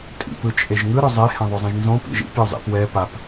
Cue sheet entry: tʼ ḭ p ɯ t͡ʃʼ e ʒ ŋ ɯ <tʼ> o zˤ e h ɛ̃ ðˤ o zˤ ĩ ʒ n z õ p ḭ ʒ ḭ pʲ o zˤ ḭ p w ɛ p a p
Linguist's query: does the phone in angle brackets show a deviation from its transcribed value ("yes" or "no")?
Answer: yes